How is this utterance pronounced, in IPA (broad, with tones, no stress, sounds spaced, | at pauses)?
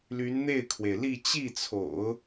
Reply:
l y˧˥ n n̪ e˥˩ ɪ̯ kʰ w e˩ ɪ̯ l i˥˧ t͡ɕ i˥˩ t͡sʰ o̰˨˩˦ ʊ̯